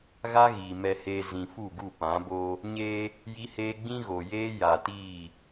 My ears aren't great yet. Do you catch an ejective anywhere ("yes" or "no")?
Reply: no